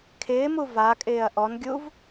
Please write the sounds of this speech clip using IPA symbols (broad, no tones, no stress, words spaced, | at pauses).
kʰɪːmu vakʼɪːɐ̯ ʔɔnɡʲuv